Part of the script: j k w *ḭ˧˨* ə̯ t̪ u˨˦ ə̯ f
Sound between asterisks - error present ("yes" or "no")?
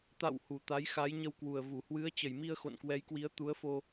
yes